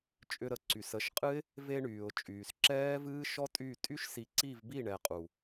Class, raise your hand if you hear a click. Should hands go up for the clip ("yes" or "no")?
yes